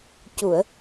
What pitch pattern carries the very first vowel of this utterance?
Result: low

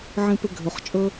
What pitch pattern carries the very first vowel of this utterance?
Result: high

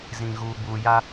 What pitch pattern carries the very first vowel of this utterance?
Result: low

